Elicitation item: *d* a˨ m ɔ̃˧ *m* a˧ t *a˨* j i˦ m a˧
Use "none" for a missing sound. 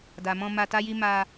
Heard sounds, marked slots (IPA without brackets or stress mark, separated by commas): d, m, a˦